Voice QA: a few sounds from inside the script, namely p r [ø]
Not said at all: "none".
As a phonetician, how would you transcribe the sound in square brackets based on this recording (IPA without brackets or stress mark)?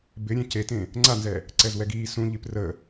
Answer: ə